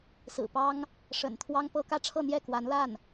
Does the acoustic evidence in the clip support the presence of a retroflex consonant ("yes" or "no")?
yes